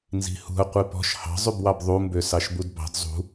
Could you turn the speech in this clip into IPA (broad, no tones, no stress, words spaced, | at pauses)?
nzi̤hṳɐ̯ qʷipɔ̤ʃ hɑ̤zˤybwɑb ðˤumbø sɑʃbudbɑ̤d zˤṳ